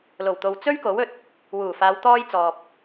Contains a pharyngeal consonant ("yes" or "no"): no